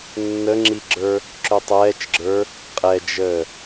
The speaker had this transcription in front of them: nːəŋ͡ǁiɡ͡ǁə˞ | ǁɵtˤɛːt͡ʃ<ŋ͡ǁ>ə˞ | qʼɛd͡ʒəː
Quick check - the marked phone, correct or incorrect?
incorrect